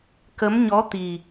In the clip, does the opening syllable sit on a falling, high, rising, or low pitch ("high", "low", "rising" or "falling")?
rising